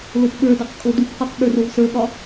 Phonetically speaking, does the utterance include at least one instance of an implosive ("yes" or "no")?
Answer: yes